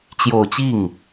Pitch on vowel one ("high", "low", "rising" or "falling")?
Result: low